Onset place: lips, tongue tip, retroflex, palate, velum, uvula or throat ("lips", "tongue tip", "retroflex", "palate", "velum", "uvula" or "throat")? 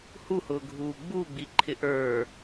throat